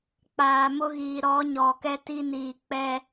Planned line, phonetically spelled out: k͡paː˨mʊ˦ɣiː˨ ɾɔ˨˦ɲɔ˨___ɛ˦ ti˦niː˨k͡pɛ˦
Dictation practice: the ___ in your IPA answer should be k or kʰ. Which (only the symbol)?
k